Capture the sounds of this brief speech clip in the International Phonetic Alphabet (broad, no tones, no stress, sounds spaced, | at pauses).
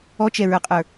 ɔ t͡ʃ ɛ ɹ ə˞ qʼ ə˞